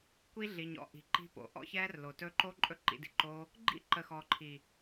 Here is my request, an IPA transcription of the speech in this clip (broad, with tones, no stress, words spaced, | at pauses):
kʷi˦ɮi˨ɲɔ̰˦ ʔi̤˨ǃi̤˧po̰˨ ʔɔ̰˦çɛː˦rlo˨tɵ˦ ǃo˦ ǃʼɵ˦ǃḭ˧di̤˧ǃoː˦ | ɡ͡ǃḭ˦ǃə˨ xɔ˨ǃʰi˨